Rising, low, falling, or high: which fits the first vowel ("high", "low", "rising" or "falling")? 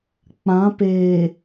rising